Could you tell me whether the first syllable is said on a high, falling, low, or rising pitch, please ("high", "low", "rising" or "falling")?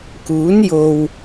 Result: rising